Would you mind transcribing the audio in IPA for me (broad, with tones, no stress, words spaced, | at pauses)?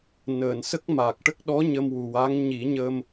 nəː˨˩˨nsə˦˥k̚ma˨˩k̚ ʈə˦˥k̚ɗɔ˧˥ ɲə˧mwu˨˩wa˧˥ŋ ɲi˨˩˦ɲə˧m